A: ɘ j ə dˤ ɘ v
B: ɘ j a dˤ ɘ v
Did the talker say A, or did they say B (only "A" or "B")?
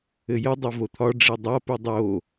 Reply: A